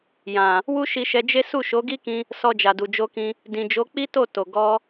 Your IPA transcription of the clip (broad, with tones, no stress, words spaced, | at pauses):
jã˨ | wu˦ʃi˧ʃɛ˧d͡ʒe˦ su˦˨ʃo˨˦ɡi˦kĩ˧ | sɔ˧d͡ʒa˨du˨ d͡ʒo˧kĩ˧ | dĩ˨d͡ʒo˨˦k͡pi˦ to˦˨to˨ ɡɔ˧